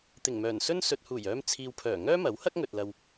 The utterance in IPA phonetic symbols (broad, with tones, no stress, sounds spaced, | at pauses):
t̪ ɪ˨˩ ŋ m œː˨˩ n s ɵ˥ n s ɵ˨ t̚ h uː˨˩ j œː˧ m t͡sʰ iː˨ w pʰ œː˨˩ ŋ œː˥ m ɐ˨˥ w h ɐ˥ k̚ ŋ ɵ˨ t̚ l ɐ˧ w